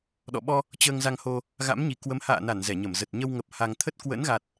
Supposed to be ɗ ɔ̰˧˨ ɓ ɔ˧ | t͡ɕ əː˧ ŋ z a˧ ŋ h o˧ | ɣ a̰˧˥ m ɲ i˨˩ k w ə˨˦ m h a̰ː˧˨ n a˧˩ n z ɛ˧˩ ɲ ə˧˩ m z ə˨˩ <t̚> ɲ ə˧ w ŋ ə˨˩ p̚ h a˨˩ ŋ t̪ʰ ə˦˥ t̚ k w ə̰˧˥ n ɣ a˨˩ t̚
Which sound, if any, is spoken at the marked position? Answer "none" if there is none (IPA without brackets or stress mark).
t̚